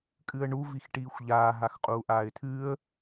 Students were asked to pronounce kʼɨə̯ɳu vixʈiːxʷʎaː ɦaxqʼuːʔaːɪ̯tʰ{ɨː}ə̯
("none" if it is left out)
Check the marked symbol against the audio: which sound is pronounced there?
ɨː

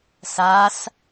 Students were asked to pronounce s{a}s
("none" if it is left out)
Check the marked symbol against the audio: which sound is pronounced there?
a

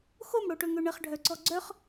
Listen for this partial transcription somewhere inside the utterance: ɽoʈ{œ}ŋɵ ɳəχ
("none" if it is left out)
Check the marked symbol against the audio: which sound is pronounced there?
ɵ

